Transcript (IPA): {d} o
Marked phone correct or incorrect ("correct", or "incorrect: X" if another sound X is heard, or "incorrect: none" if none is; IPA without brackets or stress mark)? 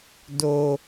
correct